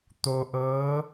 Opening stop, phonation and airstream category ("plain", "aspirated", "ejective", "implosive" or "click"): plain